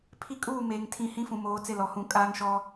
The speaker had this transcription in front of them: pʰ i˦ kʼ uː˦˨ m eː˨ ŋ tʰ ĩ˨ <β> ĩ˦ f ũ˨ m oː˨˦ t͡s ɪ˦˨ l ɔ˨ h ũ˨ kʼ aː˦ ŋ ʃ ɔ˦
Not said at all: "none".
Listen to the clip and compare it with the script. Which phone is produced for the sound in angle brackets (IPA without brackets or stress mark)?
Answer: h